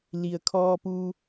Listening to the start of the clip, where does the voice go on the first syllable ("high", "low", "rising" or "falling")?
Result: low